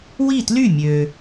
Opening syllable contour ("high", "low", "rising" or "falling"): falling